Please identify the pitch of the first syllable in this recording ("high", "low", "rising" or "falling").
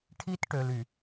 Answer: high